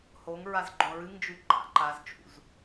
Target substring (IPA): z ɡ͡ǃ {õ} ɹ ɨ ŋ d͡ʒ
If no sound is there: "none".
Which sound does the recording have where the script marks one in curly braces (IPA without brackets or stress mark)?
õ